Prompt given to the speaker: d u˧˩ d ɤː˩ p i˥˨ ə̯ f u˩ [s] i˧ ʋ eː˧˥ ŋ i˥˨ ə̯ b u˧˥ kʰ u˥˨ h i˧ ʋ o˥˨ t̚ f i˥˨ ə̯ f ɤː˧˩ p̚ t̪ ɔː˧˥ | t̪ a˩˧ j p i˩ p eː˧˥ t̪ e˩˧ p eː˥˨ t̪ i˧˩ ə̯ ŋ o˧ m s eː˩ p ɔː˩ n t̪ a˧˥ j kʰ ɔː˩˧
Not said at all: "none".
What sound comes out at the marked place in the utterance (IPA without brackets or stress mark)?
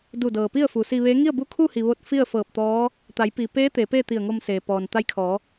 s